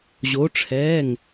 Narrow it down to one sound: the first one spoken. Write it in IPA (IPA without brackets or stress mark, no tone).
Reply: ʑ